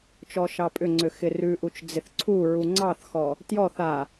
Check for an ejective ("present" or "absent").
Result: present